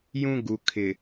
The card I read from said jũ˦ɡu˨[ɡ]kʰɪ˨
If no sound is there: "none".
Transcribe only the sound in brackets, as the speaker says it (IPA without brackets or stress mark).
none